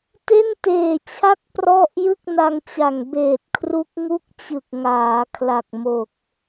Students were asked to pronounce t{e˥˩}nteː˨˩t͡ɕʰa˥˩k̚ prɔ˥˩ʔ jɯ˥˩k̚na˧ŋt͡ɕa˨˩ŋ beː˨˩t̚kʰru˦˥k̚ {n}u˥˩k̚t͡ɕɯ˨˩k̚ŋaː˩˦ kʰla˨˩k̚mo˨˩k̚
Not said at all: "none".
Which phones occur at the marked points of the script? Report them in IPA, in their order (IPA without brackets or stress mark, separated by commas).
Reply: e˥˩, ŋ